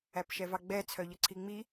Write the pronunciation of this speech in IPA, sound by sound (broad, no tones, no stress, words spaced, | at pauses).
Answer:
æpʃɛvɑɡ͡bɛ t͡sʰœʎəǀʰiŋ͡mi